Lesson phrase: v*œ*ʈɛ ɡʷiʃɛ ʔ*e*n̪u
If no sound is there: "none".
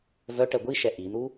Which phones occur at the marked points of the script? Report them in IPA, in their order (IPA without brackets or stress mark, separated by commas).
œ, i